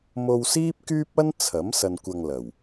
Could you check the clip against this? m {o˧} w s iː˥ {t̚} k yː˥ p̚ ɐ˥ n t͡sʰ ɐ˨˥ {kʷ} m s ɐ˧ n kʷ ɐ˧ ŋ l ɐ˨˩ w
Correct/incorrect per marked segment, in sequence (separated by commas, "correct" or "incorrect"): correct, incorrect, incorrect